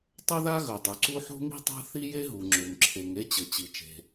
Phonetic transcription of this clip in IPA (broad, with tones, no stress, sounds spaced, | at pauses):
tˤ ɵ˥ ð a˥ ɣ ɵ˩ dˤ u˩ ǀ u˥ ħ o̤˥ ŋ i̤˥ tˤ a̤˥ θ i˥ j e˥ ɦ u˩ ŋ͡ǁ ø˩ ŋ ǁʰ e˩ ŋ e˥ t͡ɕ ɘ˩ t͡ɕ i˩ t͡ʃ e̤˩